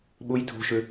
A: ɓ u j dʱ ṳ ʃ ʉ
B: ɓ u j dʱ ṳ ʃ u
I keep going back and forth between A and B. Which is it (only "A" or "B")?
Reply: A